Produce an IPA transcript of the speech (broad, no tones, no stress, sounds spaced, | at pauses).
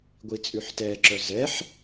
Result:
ɡʷ i t͡sʼ ʉ ħ t ɛ ǁ œ z ɛ ħ